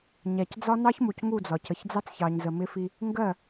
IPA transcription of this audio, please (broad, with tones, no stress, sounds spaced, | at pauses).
ɲ æ˨ c d͡z ɒ˦ n ɑ˦ ç m u˨ c ŋ u˦˨ d͡z ɒ˨ c ə˨ ç d͡z ɑ˦ t͡s ç ɑ˨ ɲ z ə˨ m ɪ˦ f i˦ | ŋ ɡ ɜ˦˨